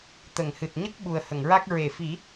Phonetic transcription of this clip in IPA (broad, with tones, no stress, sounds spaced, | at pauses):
t̪ ə˨˩˨ ŋ h ɨ˨˩ t̚ ɲ ə˦˥ k̚ ɓ u˨˩ ə̯ h ə˨˩˨ ŋ ɹ a˦˥ k̚ ɹ e˨˩˨ f i˨˩˦